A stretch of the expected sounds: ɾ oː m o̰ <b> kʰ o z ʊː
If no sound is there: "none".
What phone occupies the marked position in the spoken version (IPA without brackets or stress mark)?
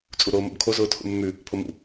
b